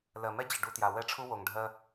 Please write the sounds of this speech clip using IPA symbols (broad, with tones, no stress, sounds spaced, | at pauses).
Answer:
l ɜ˨ m ɛ˦ d͡ʑ ə˨ ɖ u˦ t j a˨ w ɛ˦ ʈ͡ʂʰ u˦ w o˨ ŋ ɖʱ ɜ˦